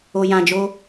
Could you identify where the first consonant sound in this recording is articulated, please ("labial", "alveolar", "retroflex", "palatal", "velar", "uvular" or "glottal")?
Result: palatal